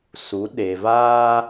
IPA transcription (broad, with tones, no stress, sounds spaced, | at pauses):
s u˨˦ ɗ e˨ v aː˦